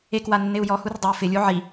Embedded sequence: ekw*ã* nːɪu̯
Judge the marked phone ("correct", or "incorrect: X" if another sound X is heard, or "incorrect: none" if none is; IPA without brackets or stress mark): incorrect: a